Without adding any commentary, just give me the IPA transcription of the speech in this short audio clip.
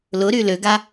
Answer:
lʊɾy løɡa

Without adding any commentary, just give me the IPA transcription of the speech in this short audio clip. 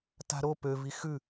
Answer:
ta̤ɾo pø vixʉ

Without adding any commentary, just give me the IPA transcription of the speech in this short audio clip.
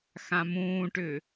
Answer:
xãmũːʈʏː

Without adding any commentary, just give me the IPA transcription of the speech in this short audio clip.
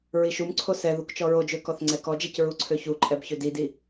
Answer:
ɹiʃumǀʰo sɛ ðukt͡ʃɔɹod͡ʒø kɔθŋ͡ǀɛkɔd͡ʒɛc ɹuǀʰøçuǃʼɛb çødidi

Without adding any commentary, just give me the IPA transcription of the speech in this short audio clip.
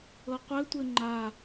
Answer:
ɤqʷɘtʷɘ ŋ͡ǃa

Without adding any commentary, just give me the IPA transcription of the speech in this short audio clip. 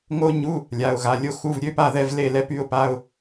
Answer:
ŋo˥ɲu˧˥˧ | lʲa˩˧˩ʊ̯ɣa˩˧˩lʲo˥xu˧˥˧v ɾʲø˧˥˧pa˥˩ðɛ˥˩v le˥˩lɛ˥py˧˥˧ʊ̯pa˧˥˧ʊ̯

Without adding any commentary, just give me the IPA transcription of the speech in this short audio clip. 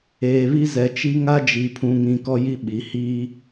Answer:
eː˨βi˦ zɛ˨t͡ʃi˦ ŋa˦d͡ʒi˨pʰũ˨ŋĩ˨ kɔ˦ji˦ ɓi˨ hiː˦

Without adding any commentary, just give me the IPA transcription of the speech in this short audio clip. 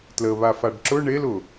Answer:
tləβa faɖǁʊ ɳel ʊ

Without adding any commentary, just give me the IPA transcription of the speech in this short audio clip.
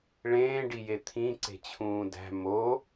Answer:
ɭẽːɖije t̪ʰĩǀe̤t͡ɕʰũː dæ̤ mo

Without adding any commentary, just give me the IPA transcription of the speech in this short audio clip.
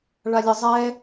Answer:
ɭalʲə zˤɛ

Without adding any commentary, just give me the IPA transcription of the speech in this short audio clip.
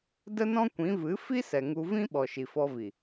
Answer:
də˦nɔ̃˦kʷĩ˨˦ vɨ˨˦fi˦sɛ˨ ŋu˧vĩ˦ ɓɔ˨ʃi˨fɔ˧vi˨

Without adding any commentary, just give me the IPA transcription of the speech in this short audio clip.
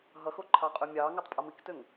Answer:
ɦʌxo ǃʰɑqʼømʲɑːŋotˤ pʼʌmiktøŋ

